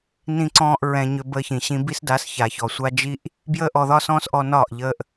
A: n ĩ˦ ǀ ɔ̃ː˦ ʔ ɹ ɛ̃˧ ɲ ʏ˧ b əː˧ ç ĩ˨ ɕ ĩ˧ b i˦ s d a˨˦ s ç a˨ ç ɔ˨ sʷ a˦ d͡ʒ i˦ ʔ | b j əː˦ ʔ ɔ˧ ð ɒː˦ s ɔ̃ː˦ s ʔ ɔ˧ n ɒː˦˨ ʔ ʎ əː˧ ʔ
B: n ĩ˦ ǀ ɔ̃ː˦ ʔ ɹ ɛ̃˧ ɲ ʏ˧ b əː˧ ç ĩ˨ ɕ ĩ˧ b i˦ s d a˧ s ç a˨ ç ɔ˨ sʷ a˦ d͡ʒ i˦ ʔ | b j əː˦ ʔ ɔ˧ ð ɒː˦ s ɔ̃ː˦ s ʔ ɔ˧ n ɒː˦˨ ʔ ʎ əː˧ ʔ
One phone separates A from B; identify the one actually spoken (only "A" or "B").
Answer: A